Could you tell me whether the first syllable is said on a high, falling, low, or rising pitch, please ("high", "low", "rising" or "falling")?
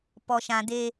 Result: low